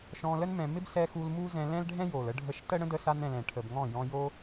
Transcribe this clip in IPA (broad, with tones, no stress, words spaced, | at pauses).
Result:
ʃɔ̃˧lə˦n mɛ̃˧ mɪ˦bsɛ˧xu˧l mu˦zɛ̃˧ lɛ̃˦lɖʱɛ̃˦jo˨l ə˧ɖʱə˧ʃtə˦ ɽə̃˦də˧sa˧nɛ̃˨l ɛ̃˨ʈʰə˨b ŋɔ̃˦˨ jɔ̃˧jo˦